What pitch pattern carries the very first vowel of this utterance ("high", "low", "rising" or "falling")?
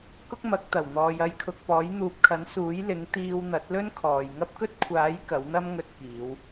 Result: high